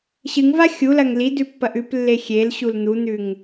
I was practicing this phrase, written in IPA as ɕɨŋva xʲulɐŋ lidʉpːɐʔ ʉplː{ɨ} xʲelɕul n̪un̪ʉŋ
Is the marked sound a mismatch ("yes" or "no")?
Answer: yes